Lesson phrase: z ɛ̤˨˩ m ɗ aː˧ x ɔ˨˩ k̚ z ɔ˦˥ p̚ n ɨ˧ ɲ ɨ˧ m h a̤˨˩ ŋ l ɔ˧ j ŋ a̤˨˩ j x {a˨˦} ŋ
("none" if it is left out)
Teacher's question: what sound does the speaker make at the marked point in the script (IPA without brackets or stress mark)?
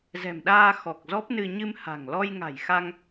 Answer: a˧